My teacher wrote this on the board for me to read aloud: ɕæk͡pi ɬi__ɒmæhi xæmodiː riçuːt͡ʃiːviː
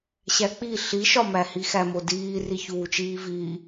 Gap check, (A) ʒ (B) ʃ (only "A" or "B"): B